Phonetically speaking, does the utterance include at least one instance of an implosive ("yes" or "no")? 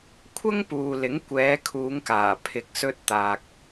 no